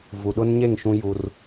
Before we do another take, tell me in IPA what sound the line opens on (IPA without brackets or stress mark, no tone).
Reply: v